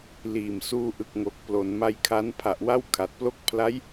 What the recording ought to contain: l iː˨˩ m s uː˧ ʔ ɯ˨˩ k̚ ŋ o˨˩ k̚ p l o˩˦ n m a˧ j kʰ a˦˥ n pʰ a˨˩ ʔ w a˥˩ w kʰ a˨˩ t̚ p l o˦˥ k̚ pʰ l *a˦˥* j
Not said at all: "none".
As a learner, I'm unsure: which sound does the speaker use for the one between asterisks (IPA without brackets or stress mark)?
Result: a˦˥